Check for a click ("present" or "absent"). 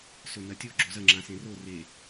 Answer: present